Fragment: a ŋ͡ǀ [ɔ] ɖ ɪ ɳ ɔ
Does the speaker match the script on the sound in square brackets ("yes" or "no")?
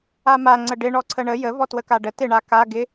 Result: no